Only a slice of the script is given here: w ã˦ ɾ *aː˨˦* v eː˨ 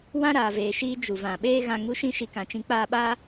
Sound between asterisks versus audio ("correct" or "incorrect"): incorrect